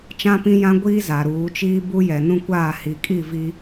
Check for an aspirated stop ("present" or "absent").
absent